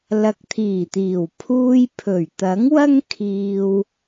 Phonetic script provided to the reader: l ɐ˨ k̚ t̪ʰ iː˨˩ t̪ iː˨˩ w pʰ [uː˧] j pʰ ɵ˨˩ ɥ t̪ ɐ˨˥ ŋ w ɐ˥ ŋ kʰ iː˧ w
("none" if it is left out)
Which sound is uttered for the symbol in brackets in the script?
uː˧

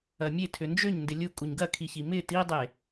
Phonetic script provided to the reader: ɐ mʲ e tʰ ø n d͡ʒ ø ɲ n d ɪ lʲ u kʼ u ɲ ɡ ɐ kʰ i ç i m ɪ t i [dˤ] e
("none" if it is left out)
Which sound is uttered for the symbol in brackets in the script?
dˤ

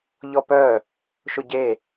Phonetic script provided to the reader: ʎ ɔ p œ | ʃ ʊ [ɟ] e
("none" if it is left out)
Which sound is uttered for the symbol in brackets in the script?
ɟ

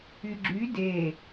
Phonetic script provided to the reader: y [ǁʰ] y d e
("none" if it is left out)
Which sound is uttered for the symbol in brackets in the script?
ɡ͡ǁ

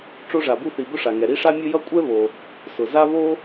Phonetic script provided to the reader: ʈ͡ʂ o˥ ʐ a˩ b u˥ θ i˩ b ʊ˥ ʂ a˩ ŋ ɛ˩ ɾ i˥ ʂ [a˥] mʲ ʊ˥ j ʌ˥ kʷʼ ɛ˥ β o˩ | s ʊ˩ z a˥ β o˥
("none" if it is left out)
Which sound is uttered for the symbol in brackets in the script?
a˥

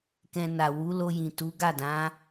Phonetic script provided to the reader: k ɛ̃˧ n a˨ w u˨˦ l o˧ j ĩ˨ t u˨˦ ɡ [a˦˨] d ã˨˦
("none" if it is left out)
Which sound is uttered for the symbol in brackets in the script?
a˦˨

